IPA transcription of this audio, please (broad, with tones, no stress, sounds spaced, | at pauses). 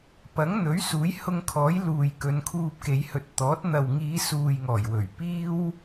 p ɐ˨˥ ŋ n̪ ɵ˨˥ ɥ s uː˨˥ j h ʊ˧ ŋ kʰ ɔː˨˥ j l uː˨ j k ɵ˨˧ n kʰ uː˧ p̚ k e˨˧ j h ɵ˨ t̚ t̪ ɔː˨˥ t̚ n̪ ɐ˨ w ŋ iː˨˧ s uː˨ j ŋ ɔː˨˩ j w ɵ˨˩ ɥ p iː˥ w